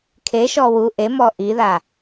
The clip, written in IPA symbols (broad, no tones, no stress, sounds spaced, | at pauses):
kʰ e ʃ ɔ w u ʔ e m ɔ ʔ i ð a